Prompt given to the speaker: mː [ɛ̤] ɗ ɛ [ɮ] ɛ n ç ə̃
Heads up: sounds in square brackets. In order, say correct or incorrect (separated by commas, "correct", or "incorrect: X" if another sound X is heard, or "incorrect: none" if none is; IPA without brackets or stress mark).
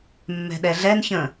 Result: correct, correct